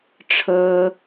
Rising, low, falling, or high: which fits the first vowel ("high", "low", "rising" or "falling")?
high